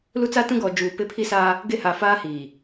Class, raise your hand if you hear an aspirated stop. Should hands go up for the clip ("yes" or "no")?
yes